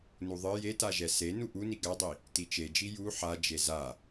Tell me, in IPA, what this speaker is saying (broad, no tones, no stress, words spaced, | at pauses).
nuðˤɨ jetaʒɛ se nuʔuni ɡadˤi | tit͡ʃed͡ʒi ju ħa d͡ʒeza